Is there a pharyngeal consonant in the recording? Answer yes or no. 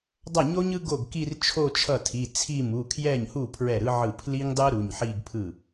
yes